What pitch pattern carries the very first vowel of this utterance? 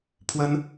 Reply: high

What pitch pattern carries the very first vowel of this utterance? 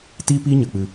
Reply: high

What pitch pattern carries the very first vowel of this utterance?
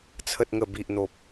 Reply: low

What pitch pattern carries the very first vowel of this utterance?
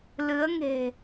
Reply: rising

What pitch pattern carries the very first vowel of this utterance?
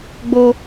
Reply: high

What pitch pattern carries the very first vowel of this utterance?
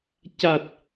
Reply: low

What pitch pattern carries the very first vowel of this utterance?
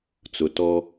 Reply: low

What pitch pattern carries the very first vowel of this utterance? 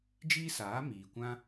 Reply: high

